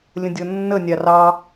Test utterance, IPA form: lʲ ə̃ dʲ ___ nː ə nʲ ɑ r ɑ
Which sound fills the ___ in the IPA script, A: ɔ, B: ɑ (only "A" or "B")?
A